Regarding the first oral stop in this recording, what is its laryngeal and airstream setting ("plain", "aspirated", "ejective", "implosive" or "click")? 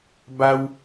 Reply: plain